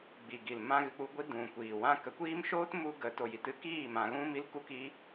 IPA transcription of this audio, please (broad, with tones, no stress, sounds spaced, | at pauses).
ɡ͡b i˨ ɡ i˨ l m ã˦ ɣ ɨ˧ k͡p u˦ ɡʷ i˦ d ũ˨ kʷ iː˨ w ã˦ k ə˨˦ kʷ iː˦ m ʃ oː˦ t m u˧ ɡ ə˨˦ t o˨ j i˨ t ɨ˧ k iː˦˨ m ã˧ ɣ ũ˦ m i˦ l k u˦ k i˦